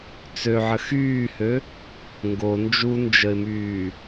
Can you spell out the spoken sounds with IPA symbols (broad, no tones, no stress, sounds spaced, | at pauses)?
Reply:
t͡s ø ʕ ə x yː h ø | ŋ ɡ o n d͡ʒ u n d͡ʒ ə ɪ̯ m yː